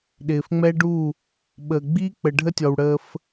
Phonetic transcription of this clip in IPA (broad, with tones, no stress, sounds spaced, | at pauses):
ɗ ɪː˨ f ŋ͡m ɛ˦ ɖ u˦˨ | ɓ ə˨ ɡ͡b iː˦ k͡p ə˨ ɖʱ ə˦ tʲ ɔ˨ w ɽ əː˦ f